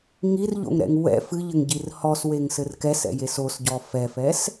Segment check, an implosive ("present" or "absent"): absent